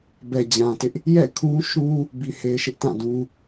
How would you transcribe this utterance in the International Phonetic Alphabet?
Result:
b ɛ˨ d͡ʑ ã˨ t ɪ˦ ʔ | j ɛ̰˦˨ kʰ ũ˦ ʃ ũ˦ | b i˨ h e˨ ɪ̯ ʃ ɪ˦ ʔ t ã˦˨ d ũ˦

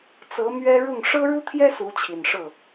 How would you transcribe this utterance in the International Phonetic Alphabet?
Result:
t͡s ɤ˧˥ m ɥ ɛ˥ ɻ ʊ˥˩ ŋ ʂ ɤ˥ ɻ u˥ t̪ʰ j ɛ˥ s u˧˥ t͡ɕʰ i˨˩ n ʂ ɤ˥˩

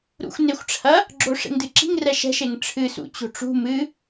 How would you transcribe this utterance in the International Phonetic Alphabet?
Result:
ɾ ṵ xʷ n e xʷ ʈ͡ʂʰ ɐ | ɡ͡ǁ o ʂ ḛ ŋ d ɨ ǁ i̤ ŋ r ɛ ʃ ɛ̤ ʃ e ŋ ʈ͡ʂʰ ɨ s ṵ t͡ɕ o̤ ʈ͡ʂ ṳ m ɨ

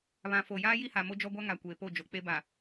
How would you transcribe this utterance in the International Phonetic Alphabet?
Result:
β ã˨ f o˨ j aː˦ j i˦ h a˨ m o˦ d͡ʒ ɔ˦ ɡʷ a˦ ŋ a˨ kʷ eː˨ p o˦˨ d͡ʒ o˨ k͡p e˦ b a˨

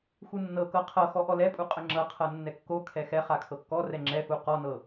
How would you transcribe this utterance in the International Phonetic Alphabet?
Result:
x u nː ɤ k ɤ qʰ ɤ x ɔ ʔ ɔ l ɛ pʼ u qʼ ə ŋ͡ǁ ɤ qʰ ɤ nː ɛ kː o kʰ ɛ x ɛ χ a kʰ ɤ kː ɔ r ɛ ŋ͡ǁ ɛ f u q ɔ n ɤ

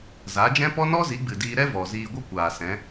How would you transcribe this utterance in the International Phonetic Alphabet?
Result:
z a˨˦ d͡ʒ ɛ̃˦ p ɔ˦ n ɔ˦ z i˨˦ ɡ͡b ɨ˨ d iː˧ ɾ ɛ˦ v ɔ˨ z iː˧ ɡʷ ɨ˦ kʷ aː˨ s ɛ̃˨˦

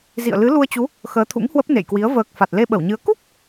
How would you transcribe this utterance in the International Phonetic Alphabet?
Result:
z ḭ˧˨ ə̯ l ɨ˨˦ l u˧ ə̯ t͡ɕ u˨˦ | x əː˨˦ t̪ʰ ṵ˧˥ ŋ h w ə˦˥ p̚ n ḛ˧˨ j k w i˨˦ ə̯ v əː˨˩ k̚ f a˨˩ t̚ l e˧ ɓ ə˧˩ w ɲ ɨ˨˦ ə̯ k u˦˥ k̚

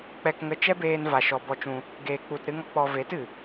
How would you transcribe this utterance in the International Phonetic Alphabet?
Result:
k͡p ɛ˧ k ŋ ə˧ t͡ʃ ɛ˦ b eː˧ n v a˨ ʃ ɔ˨ b ɔ˧ t͡ʃ ũ˧ | ɡ eː˨ k͡p u˨ t ɾ ɨ˦ ŋ ɔ˦ k͡p ɔ˧ v e˨˦ t ɨ˨

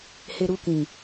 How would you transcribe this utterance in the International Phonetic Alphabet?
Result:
h e˧ ɾ u˧ k ĩ˨

